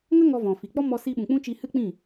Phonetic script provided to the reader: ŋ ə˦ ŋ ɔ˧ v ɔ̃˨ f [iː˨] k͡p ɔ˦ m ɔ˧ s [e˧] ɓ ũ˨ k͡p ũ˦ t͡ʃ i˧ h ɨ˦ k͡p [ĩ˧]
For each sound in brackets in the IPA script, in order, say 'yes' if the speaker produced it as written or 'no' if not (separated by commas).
no, no, no